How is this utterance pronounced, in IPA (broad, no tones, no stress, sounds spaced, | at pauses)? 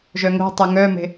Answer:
ʒ œ ŋ o̤ tˤ e ŋ œ m e̤